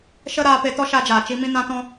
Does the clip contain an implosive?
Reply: no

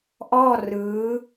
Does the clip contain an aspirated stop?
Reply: no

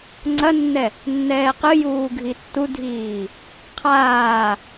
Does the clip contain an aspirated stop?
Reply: yes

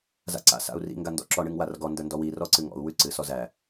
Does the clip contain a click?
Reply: yes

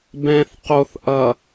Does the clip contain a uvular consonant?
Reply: yes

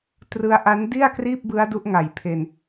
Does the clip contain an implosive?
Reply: no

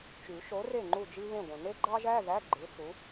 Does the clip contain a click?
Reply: yes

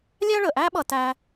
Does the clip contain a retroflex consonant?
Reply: yes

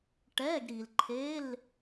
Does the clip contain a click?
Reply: yes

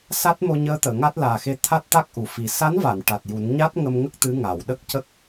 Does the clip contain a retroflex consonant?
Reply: yes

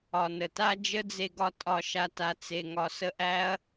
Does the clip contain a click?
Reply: no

